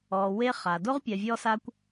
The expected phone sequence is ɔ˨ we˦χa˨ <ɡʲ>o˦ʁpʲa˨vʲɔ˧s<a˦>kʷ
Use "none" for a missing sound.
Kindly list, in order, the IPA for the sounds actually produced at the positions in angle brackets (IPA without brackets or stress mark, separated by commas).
d, a˧